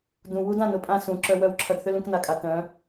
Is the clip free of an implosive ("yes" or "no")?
yes